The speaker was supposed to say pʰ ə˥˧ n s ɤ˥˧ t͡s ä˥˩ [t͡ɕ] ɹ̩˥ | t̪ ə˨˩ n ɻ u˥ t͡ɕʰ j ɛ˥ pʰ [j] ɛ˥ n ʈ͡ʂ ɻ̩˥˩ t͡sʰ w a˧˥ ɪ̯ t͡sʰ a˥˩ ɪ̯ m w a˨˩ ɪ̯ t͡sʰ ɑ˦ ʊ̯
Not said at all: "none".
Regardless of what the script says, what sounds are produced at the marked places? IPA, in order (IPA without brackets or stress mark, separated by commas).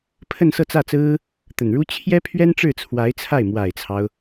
t͡s, ɥ